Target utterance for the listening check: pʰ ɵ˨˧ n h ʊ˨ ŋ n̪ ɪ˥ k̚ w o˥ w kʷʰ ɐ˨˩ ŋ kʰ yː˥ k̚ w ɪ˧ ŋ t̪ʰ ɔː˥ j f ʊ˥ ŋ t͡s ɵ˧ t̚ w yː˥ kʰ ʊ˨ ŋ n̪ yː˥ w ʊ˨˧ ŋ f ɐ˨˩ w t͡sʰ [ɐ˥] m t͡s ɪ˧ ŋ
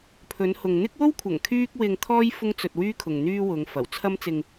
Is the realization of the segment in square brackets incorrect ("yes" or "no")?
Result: no